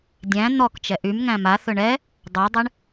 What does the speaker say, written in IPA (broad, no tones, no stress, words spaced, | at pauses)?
dʲæ̃ n̪ɔk t͡ʃɛʔymŋæ̃ maθɵ ɳɛ | dˤadˤɛɳ